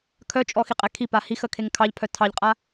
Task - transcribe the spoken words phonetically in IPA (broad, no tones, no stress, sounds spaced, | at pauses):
kʰ œ t͡ʃʼ ɔ x i qʼ ɛ kʰ i p a h i x ə kʰ e ŋ kʰ ɑ ʎ pʰ œ tʰ ɑ ʎ qʼ a